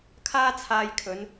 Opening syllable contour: high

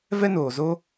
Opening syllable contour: high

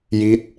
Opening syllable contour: falling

